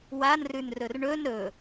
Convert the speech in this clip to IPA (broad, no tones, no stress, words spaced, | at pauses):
wanrʉnrɵr ɳɵn ɾɵ